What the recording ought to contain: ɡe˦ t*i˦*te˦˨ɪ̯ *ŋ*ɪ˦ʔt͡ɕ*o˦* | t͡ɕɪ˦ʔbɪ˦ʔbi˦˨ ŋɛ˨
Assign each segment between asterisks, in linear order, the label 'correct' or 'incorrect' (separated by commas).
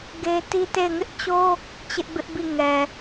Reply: correct, correct, correct